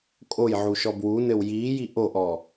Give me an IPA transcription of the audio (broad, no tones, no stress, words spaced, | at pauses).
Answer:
kʼojʕuʃɔ bwunɘw jiːji ʔoʔɔ